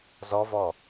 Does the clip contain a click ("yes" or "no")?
no